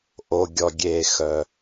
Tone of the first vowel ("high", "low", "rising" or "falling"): low